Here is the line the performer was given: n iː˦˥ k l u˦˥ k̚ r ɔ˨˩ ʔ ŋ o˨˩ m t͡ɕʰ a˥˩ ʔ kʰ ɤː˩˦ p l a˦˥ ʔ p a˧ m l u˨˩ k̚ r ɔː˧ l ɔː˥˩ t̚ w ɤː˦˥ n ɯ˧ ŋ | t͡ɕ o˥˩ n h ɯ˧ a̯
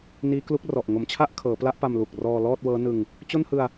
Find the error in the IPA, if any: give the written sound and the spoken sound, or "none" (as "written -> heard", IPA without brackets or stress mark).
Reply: none